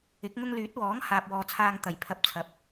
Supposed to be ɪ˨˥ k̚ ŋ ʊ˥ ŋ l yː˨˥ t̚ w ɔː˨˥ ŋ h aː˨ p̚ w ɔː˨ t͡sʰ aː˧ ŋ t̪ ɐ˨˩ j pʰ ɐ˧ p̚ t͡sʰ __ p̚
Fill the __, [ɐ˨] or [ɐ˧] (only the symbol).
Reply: ɐ˨